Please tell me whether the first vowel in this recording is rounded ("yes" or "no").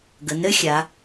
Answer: no